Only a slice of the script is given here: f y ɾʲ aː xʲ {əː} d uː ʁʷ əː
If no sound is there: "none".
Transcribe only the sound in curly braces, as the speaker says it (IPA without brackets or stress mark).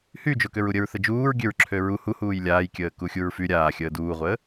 əː